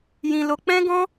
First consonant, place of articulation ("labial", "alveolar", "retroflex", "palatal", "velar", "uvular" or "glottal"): palatal